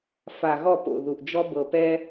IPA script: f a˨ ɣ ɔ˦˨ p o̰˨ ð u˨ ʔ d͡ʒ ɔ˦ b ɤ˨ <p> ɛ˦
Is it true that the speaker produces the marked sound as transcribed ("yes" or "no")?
yes